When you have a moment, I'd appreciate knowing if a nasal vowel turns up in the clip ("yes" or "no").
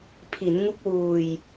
no